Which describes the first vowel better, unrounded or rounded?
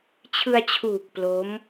unrounded